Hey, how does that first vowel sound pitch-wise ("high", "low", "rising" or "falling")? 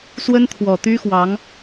high